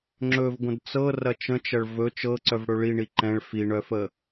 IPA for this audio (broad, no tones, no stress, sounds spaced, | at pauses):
ŋ͡ǁ ɵ v ɡʷ ə̃ d t͡s ɤ r ɐ t͡ʃ ə̃ t͡ʃ ɐ ɭ v ɵ t͡ʃ ɤ ǀ œ v ɽ ɵ ɭ i ɳ i ǃ ɛ̃ ɭ f i ɳ œ f ə